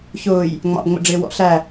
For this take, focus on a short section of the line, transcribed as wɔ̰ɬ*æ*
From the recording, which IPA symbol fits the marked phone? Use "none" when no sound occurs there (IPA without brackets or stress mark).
æ